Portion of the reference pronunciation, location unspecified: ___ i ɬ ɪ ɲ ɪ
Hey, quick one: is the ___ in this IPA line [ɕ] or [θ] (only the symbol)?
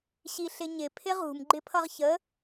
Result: ɕ